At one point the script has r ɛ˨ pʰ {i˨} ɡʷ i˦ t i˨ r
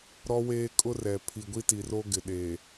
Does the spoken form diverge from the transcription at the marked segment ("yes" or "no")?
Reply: no